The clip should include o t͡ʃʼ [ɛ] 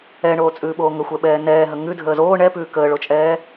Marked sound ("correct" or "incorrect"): incorrect